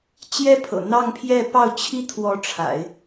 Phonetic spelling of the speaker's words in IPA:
t͡ɕ j ɛ˥ pʰ ɤ̰˨˩ n̪ ɑ˥˧ ŋ pʰ j ɛ˥˧ p ɑ˥˩ ʊ̯ t͡ɕʰ i˥ t̪ʰ w ɔ˧˥ ʈ͡ʂʰ a̰˨˩˦ ɪ̯

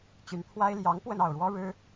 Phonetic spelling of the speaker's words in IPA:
t͡ɕ y˧˥ n pʰ w a˥ ɪ̯ l j ɑ˧˥ ŋ p w ə˥˧ n ɑ˥˩ ʊ̯ ɻ w ɔ˥ ɻ ɻ̩˥

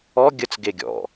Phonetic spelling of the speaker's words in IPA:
ɔ ɡʲ ə t͡s ɡ e ɡʲ ɔ̰

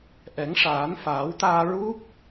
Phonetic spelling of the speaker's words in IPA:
ʔ ɛ˨˩˦ ŋ ʂ aː˨˩˦ n f aː˨˩˦ w t̪ aː˧ ɹ u˦˥ k̚

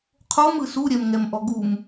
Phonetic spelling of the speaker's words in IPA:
qʰ o m ɯ s u ɾʲ ɛ m ŋ ɛ m ʔ ɔ ɡ u m

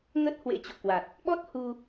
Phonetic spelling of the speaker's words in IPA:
ŋ ə˦˥ t̚ h w ḛ˧˥ t͡ɕ o̰˧˨ k w a˨˩ t̚ | ɓ ɔ˦˥ t̚ h u˧

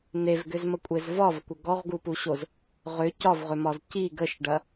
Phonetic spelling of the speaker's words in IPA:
n e v ɡ ʏ z m ə kʷʼ e z v ɒ v kʷ ə ɡ ɔ ʁ ɡ u p u ɕ o z | ʁ ʏ c ɒ v ʁ ʏ m ɒ z c i ɡ ə ʃ ɖ ɐ

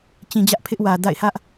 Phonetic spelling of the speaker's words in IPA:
t͡ɕ ĩ˨ d͡ʑ ä˦ ʔ pʰ ɪ˦ ʔ w ä˨ d a̰˦˨ ɪ̯ h ä˦ ʔ

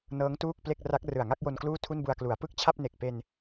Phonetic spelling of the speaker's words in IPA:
n ɤː˦˥ ŋ t uː˥˩ k̚ p l e˥˩ k̚ r a˦˥ k̚ r ɯ˨˩ a̯ ŋ a˥˩ k̚ j o˧ n k l uː˥˩ tʰ u˥˩ n b u˧ a̯ k l u˩˦ a̯ p ɯ˥˩ k̚ t͡ɕʰ a˥˩ p̚ n e˨˩ k̚ p e˧ n

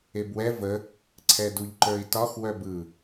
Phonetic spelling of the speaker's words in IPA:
e b w ɛ v ə | ǀʰ ɛ d u ʎ ǃ ə˞ i̯ t ɒ x w œ b ɯ

